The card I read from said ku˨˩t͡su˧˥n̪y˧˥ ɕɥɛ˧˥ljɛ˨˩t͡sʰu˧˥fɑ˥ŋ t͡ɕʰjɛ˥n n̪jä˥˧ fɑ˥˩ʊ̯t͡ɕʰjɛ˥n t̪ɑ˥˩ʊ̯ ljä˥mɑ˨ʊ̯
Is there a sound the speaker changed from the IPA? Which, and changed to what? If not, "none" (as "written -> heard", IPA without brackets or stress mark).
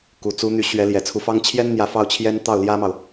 none